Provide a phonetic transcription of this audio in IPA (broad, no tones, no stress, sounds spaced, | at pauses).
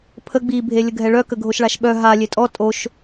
pʰ ə ɡ͡b i bʱ e lʲ ə ɡʱ ɛ ɭ œ k ə ɡʱ o ʃ ɭ a ʃ ɓ œ ɦ a lʲ e tʼ ɔ tʼ o ʃ